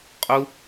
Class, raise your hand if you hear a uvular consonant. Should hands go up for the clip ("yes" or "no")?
yes